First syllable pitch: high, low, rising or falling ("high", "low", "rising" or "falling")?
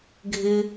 low